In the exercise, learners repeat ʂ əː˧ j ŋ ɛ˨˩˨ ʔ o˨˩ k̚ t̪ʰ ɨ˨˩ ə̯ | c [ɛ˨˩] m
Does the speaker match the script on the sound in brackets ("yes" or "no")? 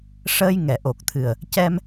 no